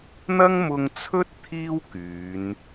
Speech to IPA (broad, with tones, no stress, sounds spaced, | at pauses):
n̪ ɐ˥ ŋ m ʊ˧ ŋ t͡sʰ ɵ˥ t̚ t̪ʰ iː˥ w k yː˨˧ n